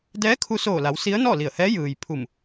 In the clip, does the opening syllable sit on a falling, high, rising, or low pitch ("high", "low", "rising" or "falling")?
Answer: rising